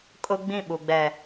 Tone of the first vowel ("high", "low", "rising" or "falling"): high